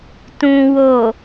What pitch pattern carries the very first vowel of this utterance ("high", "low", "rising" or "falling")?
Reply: low